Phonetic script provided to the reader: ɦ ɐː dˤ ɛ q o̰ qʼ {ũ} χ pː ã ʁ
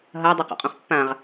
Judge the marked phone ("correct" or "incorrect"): incorrect